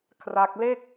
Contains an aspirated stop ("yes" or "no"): yes